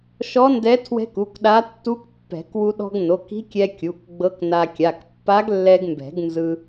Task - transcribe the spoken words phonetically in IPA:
ʃ ɔ˧˥ n d ɛ˧˥ tʰ w ɛ̤˧˥ k u˩˧˩ k ɗ a˧˥ tː u˧˥ k pː ɛ̤˨˩˦ k w u˧ ɗ ɔ̤˧ ɡ n o˩˧˩ k i̤˧˥ kʲ ɛ˧ kʲ u˩˧˩ k ɡ͡b ɤ˧˥ k n a˧ kʲ a˩˧˩ k pː a˧˥ ɡ lː ɛ˧ ɡ m b ɛ̤˨˩˦ ɡ n z ɯ˧

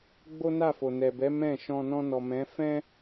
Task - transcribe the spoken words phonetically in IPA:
ɡ͡b o˦ n a˦˨ f o˨ n ɛ˨ b ɛ˨˦ m ɛ̃˦˨ ʃ ɔ̃˧ n ɔ̃˧ n ɔ˨ m ɛ̃˨˦ f ɛ̃˦

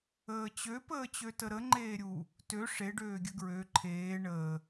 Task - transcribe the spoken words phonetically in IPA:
əː t͡ɕ ø p əː t͡ɕ ø t ə ɾ ə ŋ͡ǃ eː ɾʲ u | t ø ʂ e ɖ øː ɡʲ ə ɡ ɹ ø ǃʰ eː ɳ əː

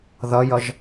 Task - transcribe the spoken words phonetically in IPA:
ð ʌ j ʌ ʒ

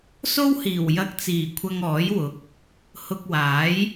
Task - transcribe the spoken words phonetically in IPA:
s o˥ w h iː˨˩ w j ɐ˧ k̚ t͡s iː˨˩ kʷʰ ɐ˥ ŋ ɔː˨˥ j w ʊ˨˥ k̚ | h ʊ˧ k̚ w aː˨˥ j

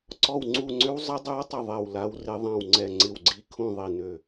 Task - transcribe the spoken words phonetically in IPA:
ǀ ɔ˦˨ w ŋ͡ǀ u˦˨ ŋ͡ǀ ʏ˦˥ w zˤ ə˦˥ dˤ œ˦˥ w tˤ ə˦˨ ðˤ ɛ˦˨ w l a˦˥ w r ɪ˦˥ ðˤ ã˦˨ w ŋ͡ǀ ɛ˦˨ ŋ͡ǀ ɪ˦˨ w ɡ͡ǀ i˦˥ kʰ ũ˦˨ ðˤ i˦˨ n ø˦˨

